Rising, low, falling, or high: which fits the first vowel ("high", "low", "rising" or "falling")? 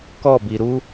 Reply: falling